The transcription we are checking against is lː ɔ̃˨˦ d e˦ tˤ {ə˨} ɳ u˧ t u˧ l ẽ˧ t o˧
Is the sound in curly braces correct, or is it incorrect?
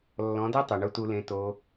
incorrect